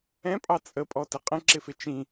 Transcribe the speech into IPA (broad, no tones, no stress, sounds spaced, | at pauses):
ɛ̃ pʼ ɑ t͡sʼ ə pʼ ɔ t ə qʼ ə̃ ǁ ɪ f ɪ t͡ʃ ĩ